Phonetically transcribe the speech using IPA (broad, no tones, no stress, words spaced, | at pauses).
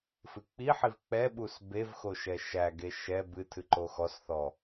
fɨk͡piħiv k͡pɛɓus bevxo ʃɛʃæɡe ʃɛ bɨtʰɨ ǃoxɔsθɔ